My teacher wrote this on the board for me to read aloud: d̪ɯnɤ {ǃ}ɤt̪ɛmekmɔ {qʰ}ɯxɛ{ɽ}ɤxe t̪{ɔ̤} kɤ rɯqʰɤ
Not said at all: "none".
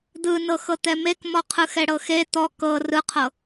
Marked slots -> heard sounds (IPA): x, qʰ, ɽ, ɔ

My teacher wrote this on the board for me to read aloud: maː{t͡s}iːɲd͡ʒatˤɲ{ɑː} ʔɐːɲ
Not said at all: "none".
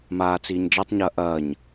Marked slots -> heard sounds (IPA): t͡s, ɐː

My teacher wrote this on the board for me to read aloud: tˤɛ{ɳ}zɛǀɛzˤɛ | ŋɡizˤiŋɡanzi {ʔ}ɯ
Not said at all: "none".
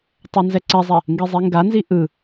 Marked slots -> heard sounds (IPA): n, ʔ

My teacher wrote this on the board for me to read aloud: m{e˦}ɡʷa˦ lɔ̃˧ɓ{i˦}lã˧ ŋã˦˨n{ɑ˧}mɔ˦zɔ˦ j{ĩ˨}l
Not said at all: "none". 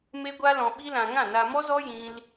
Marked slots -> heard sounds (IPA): e˦, i˦, a˧, ĩ˦

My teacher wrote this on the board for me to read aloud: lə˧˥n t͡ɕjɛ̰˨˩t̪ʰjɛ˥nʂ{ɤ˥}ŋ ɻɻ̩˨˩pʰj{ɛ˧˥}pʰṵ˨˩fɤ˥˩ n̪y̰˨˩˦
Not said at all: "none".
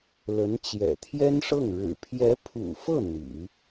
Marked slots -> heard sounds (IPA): ɤ˥˩, ɛ˧˥

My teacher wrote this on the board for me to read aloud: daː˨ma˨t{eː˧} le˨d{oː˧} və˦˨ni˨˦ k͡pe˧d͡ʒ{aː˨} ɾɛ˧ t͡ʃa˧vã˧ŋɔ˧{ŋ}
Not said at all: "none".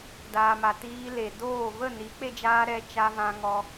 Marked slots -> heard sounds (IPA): iː˧, oː˦˨, aː˧, none

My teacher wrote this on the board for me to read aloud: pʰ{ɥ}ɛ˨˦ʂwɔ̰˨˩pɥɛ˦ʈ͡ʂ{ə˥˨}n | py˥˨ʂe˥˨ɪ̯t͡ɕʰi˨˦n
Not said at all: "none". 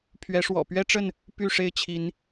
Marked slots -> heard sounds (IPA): ɥ, ə˥˨

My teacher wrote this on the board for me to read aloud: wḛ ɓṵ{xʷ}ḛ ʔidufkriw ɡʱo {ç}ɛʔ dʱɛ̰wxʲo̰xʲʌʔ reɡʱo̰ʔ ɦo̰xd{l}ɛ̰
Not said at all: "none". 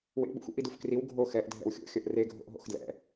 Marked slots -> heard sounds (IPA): xʷ, x, l

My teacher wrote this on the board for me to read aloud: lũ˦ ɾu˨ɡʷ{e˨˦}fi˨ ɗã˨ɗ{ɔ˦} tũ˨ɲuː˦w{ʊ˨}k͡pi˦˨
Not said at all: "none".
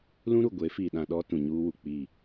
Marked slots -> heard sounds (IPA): e˨˦, ɔ˦, u˨

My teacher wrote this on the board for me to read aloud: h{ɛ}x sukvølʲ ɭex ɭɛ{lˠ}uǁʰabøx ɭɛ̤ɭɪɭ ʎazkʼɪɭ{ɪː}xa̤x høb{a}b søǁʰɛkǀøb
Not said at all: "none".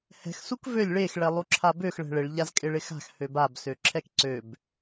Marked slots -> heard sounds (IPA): ɛ̤, lˠ, ɪ, a

